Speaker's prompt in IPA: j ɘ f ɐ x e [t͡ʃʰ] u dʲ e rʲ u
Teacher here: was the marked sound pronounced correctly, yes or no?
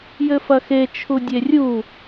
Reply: yes